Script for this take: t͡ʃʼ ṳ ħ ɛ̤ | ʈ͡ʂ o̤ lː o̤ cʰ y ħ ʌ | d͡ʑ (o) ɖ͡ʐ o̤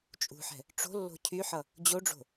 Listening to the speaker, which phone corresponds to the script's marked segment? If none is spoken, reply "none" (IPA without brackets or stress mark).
o